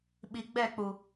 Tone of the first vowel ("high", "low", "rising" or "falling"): low